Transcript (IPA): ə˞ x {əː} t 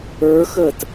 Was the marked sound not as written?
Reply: no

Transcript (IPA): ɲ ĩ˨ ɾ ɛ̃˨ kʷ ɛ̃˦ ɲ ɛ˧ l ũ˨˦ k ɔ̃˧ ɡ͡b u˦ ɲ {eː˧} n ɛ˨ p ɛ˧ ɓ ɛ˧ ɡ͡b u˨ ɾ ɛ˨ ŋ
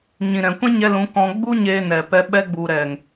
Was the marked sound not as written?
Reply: no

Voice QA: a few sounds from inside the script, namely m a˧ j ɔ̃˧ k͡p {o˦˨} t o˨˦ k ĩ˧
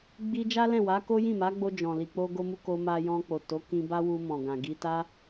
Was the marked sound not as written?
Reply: yes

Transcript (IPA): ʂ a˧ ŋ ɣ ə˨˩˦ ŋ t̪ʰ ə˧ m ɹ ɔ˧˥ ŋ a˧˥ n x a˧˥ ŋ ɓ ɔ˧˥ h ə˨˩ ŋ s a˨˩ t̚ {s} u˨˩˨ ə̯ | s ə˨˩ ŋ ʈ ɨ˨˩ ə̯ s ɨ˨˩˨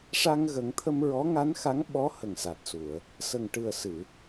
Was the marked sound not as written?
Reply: no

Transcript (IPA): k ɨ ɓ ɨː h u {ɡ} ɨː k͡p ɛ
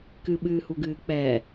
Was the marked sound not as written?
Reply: no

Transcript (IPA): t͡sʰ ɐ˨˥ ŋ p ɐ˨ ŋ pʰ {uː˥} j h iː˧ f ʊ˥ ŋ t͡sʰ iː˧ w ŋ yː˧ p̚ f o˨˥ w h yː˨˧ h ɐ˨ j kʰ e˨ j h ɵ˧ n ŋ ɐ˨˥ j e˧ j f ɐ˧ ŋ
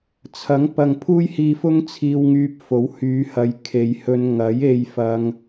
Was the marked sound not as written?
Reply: no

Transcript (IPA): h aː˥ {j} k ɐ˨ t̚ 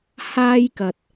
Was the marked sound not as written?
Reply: no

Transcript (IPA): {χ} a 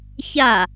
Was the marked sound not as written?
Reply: yes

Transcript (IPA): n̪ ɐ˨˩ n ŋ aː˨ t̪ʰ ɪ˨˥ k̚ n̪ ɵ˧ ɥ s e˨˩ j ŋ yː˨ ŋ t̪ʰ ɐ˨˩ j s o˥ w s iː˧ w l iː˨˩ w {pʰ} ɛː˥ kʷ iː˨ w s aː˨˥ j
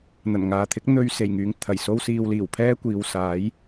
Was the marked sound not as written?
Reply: no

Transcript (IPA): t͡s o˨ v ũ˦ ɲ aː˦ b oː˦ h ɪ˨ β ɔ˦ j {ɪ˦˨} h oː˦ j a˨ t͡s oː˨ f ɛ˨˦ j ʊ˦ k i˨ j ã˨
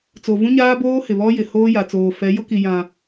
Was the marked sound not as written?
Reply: yes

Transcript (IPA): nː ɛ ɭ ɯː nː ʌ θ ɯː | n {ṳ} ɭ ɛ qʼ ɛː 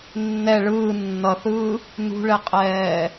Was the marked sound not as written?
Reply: no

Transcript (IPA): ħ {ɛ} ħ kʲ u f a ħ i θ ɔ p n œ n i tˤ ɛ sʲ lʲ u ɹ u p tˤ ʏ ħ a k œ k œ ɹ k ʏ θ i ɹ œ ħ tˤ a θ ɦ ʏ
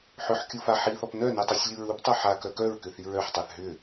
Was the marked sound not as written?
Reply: yes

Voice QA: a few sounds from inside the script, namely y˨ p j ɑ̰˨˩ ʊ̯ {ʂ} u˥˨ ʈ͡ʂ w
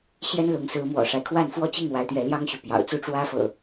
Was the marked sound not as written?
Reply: yes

